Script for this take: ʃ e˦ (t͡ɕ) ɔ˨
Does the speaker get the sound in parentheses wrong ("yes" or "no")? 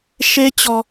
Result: no